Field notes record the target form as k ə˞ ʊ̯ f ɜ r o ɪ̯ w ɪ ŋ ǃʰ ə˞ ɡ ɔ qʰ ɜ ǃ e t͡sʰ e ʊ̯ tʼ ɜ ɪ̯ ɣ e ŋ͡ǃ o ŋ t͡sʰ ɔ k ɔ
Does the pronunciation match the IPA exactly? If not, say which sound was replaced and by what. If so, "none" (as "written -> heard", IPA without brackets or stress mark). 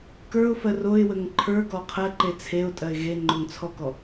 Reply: ɪ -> ə